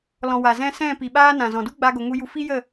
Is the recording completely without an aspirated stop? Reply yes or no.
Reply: yes